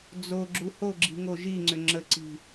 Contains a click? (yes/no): yes